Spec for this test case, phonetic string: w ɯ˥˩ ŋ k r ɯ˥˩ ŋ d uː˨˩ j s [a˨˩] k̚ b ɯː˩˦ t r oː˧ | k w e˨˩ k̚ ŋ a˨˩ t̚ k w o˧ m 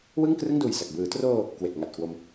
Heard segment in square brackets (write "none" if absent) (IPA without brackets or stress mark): a˨˩